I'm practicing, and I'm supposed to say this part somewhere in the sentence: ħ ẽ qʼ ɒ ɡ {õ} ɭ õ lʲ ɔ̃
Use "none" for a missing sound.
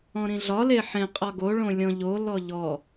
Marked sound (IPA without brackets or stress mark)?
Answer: o